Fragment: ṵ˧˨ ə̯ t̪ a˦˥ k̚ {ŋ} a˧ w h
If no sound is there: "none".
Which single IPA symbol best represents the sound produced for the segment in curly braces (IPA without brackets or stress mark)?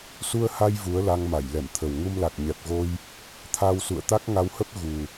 ŋ